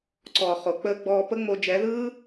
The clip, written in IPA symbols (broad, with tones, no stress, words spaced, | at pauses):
ǀɔː˨χo˨k͡pəː˧ɡ͡bɔː˧ pə˦ŋ͡mo˧ d͡ʒɛ˨˦ðɯː˦